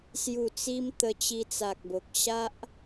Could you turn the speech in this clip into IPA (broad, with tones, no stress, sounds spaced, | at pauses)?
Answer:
s j u˨˩ t͡s i˧ m t̪ ə˧ t͡ɕ i˧ t͡s a˨ k̚ b o˨ k̚ ɕ a˦ ʔ